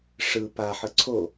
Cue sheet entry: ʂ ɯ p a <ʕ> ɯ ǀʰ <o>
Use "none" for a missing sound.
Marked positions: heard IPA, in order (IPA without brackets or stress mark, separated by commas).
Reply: ħ, o